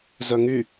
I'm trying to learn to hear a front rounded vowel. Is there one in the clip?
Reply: yes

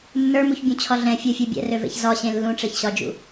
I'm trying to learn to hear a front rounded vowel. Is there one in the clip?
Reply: yes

